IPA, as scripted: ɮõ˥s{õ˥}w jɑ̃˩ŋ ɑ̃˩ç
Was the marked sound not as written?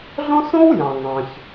no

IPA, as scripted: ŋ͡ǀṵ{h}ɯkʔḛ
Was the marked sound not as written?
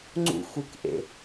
yes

